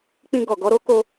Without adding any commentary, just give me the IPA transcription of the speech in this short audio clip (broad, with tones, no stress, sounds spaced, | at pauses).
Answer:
k͡p ĩ˧ ɡ ɔ˨ ɡ ɔ˧ ɾ o˦ k o˧